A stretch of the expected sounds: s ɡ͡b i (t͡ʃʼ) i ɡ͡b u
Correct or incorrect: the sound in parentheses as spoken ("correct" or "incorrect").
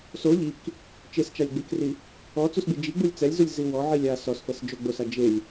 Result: incorrect